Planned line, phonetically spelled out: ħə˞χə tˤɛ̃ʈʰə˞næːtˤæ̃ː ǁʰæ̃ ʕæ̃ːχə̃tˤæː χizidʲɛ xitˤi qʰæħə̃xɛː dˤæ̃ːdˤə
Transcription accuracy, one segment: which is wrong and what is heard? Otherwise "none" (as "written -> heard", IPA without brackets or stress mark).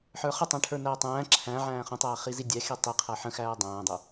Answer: ɛː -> æː